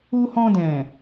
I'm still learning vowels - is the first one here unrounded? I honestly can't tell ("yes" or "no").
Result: no